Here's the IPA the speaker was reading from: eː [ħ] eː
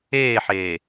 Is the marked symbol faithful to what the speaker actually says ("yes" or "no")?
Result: yes